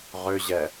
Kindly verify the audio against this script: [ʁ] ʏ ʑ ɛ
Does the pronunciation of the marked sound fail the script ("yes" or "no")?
no